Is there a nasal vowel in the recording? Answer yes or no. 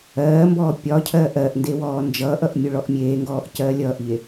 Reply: no